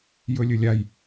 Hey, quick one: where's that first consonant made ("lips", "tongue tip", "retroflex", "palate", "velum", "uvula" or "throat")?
palate